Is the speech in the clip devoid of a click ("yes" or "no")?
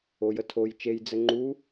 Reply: no